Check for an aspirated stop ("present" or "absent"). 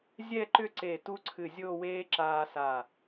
present